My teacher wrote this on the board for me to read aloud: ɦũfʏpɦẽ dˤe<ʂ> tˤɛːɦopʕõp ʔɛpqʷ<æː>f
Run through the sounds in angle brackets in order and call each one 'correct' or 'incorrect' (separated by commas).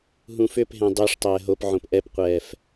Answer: correct, incorrect